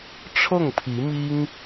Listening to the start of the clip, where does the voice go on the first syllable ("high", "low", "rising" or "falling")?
falling